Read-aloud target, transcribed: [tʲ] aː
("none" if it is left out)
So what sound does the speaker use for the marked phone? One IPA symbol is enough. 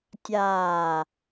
tʲ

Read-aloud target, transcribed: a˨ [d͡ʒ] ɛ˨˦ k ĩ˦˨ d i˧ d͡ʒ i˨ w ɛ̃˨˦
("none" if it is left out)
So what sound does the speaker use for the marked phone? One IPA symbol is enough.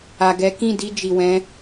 ɡ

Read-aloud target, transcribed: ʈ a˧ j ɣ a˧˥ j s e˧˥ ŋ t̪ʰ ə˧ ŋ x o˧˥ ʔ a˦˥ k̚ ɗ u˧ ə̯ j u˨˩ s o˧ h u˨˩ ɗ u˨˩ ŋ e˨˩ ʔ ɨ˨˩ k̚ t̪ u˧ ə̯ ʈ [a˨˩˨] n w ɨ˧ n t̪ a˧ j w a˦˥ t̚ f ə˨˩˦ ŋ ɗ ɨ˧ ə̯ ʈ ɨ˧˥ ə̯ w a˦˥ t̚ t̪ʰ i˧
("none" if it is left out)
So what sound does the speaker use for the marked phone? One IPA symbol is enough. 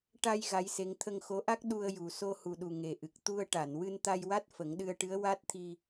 a˨˩˨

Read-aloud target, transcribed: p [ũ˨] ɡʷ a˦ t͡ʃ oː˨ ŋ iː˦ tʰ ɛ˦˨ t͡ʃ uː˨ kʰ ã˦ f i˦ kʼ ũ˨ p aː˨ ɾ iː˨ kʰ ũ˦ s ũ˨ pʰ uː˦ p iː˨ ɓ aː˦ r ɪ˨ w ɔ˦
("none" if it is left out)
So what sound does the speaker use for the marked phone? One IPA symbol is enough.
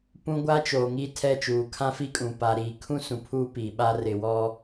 ũ˨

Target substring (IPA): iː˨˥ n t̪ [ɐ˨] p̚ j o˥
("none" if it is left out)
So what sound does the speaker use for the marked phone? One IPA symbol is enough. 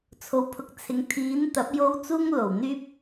ɐ˨˥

